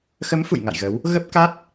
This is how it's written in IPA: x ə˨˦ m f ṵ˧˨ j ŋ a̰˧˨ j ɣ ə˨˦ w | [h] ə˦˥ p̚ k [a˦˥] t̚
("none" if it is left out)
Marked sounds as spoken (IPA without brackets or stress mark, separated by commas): ɣ, a˦˥